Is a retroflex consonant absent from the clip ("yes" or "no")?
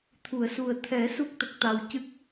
yes